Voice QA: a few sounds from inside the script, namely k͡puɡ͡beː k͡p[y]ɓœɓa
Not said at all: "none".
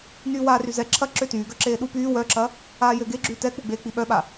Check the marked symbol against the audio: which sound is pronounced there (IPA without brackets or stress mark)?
i